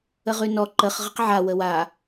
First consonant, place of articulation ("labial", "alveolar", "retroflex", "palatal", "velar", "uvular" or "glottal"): uvular